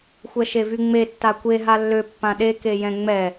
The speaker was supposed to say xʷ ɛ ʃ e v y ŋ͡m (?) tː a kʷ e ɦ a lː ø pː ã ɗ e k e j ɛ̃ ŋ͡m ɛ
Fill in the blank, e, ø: e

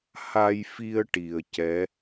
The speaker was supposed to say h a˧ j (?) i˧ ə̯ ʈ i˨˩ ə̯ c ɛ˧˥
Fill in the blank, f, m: f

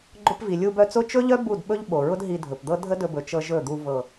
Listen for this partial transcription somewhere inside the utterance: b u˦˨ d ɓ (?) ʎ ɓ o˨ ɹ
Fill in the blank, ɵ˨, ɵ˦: ɵ˦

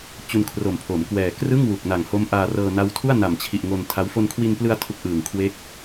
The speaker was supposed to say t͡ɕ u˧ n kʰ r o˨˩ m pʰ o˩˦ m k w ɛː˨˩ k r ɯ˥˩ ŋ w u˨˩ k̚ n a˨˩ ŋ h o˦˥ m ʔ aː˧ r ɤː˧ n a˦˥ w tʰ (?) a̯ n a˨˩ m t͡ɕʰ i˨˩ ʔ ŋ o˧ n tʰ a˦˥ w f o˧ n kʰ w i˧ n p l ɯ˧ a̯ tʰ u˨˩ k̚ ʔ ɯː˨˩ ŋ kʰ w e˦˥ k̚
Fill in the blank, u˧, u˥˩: u˥˩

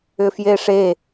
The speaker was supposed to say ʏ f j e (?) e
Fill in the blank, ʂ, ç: ʂ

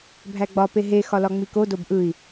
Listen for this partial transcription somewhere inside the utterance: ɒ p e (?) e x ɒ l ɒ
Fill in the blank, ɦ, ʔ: ɦ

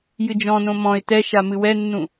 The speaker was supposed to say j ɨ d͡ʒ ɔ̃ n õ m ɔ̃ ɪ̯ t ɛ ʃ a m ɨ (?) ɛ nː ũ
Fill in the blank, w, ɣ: w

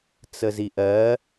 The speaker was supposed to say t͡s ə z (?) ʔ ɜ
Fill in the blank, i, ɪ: i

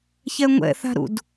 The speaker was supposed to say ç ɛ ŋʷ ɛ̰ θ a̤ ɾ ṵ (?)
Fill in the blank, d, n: d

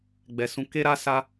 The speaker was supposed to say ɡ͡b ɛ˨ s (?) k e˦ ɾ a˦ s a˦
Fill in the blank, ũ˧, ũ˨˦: ũ˨˦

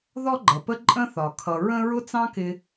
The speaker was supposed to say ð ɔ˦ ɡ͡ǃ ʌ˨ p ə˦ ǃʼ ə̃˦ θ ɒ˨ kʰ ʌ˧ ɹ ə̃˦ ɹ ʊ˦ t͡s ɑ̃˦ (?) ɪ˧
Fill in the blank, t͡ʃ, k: k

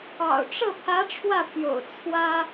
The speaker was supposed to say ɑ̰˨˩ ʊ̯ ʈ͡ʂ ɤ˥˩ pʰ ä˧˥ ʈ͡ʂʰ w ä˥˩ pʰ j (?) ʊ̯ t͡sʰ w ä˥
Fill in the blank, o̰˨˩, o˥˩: o̰˨˩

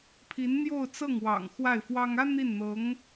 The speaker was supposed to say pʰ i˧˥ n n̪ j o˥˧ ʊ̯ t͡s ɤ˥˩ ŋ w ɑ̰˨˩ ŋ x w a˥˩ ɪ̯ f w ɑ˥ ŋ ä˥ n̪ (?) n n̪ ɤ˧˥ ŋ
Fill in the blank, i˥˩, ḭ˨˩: i˥˩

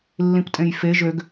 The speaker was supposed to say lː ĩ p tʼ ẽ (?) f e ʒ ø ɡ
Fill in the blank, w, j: j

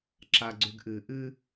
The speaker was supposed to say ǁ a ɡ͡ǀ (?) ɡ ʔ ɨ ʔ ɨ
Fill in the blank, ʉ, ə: ʉ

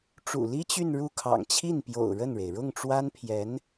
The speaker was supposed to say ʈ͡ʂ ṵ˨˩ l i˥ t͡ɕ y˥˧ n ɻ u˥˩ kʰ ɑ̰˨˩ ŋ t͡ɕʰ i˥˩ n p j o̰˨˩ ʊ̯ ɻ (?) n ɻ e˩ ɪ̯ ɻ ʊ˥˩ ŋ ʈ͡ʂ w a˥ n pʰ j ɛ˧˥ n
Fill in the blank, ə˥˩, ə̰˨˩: ə˥˩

